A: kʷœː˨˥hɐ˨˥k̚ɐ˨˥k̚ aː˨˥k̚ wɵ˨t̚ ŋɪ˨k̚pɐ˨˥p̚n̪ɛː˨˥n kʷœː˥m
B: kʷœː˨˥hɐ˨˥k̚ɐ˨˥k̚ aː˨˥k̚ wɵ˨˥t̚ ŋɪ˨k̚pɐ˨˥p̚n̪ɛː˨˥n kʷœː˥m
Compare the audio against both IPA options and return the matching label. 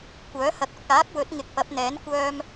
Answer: B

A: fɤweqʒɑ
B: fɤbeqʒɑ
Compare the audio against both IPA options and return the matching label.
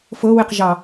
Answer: A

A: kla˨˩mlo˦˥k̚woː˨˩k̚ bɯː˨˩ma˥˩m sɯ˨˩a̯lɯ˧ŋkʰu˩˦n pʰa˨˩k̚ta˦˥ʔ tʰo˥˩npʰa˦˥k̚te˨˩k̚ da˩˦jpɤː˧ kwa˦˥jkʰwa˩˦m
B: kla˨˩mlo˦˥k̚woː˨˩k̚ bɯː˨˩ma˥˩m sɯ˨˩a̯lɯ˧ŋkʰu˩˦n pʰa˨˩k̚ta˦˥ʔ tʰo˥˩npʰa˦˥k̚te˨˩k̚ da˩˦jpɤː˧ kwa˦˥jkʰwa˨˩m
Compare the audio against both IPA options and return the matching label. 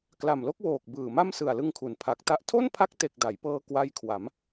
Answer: A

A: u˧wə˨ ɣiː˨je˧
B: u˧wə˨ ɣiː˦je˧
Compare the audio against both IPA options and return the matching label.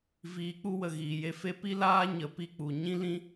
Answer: A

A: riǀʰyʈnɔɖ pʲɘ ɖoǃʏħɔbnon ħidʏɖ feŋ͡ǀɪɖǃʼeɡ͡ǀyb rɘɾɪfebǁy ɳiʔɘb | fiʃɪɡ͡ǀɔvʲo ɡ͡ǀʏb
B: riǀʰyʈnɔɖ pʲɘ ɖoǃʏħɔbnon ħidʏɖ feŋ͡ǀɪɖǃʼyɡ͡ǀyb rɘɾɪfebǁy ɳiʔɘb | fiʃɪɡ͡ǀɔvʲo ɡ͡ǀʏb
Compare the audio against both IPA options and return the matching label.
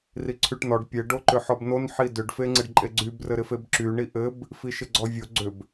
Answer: A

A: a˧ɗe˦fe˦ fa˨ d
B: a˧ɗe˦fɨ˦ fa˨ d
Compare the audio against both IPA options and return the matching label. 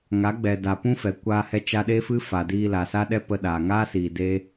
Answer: B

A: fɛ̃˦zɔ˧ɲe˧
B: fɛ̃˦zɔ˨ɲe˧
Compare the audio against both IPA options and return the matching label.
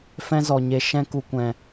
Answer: B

